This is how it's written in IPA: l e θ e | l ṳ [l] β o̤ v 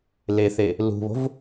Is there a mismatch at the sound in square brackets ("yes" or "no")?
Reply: yes